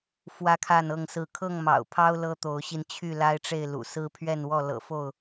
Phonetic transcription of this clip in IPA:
f w ä˦ kʰ a˥˨ n ɤ˥˨ ŋ s ɹ̩˥˨ kʰ ɤ˥˨ ŋ m ɑ̰˨˩ ʊ̯ pʰ ɑ˦ ʊ̯ l ɤ˦ t̪ o˨˦ ʊ̯ ɕ i˧ n t͡ɕʰ y˥˨ l a˦ ɪ̯ ʈ͡ʂ e˥˨ ɪ̯ l ṵ˨˩ s ɹ̩˦ pʰ ɥ ɛ˥˨ n w ɔ˥˨ l ɤ̰˨˩ f o˥˨ ʊ̯

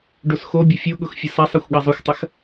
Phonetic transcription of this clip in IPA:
ɖ o s x o bʲ ʊ fʲ o ɠ ʊ x fʲ ʊ s a sˤ ɐ xʷ ɠ ɐ zˤ ʊ xʷ tˤ ɐ x

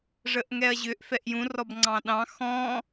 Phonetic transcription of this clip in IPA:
ʐ ə ʔ ŋ ɛ ɐ̯ ʑ ʏ ʔ f ɛ ʔ j ũ r ɔ b ŋ͡ǀ ɑ̃ ɗ ɑ̃ x ɔ̃

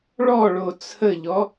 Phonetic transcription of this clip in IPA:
ɭ ɔ ɭ o t͡sʰ ə ʎ ɔ

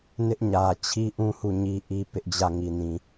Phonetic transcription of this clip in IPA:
n ɪ˦ ʔ ɲ ä˨ t͡ɕʰ i˦ ʔ ũ˦ h u˦˨ ɲ i˦ ʔ i˦ p ɪ˦ ʔ d͡ʑ ä˦˨ ŋ i˨ n ĩ˨

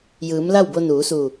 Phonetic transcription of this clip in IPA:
j ɯː˩˧ m l a˥˨ w b o˧ n uː˩˧ s uː˧˩

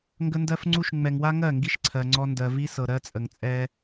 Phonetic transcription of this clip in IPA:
ŋ ɡ ə˦ n d ɜ˦ f ŋ͡ǀ u˦ ʃ ŋ͡m ɛ˨ ŋ w a˦ ŋ ɜ˦˨ ŋ ɡ i˦ ʃ ǀʰ ɜ˨ ŋ͡ǀ ɔ˦ n d ɜ˨ v i˦ s ɤ˨ ɾ ɜ˦ t͡sʼ ə˨ ŋ t͡sʼ ɛ˦

